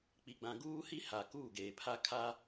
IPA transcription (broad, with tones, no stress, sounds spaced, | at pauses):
k͡p i˨ ɡ͡b ã˨ ɡ uː˦ h i˦ h a˨ k uː˦˨ ɡ eː˨ pʰ a˦ kʰ a˦